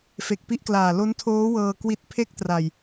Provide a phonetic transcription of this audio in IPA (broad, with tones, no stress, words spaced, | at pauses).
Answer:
fe˨˩k̚pi˥˩ʔklaː˨˩ lo˦˥ntʰoː˦˥wɤː˧ kwi˦˥t̚pʰe˥˩k̚tra˨˩j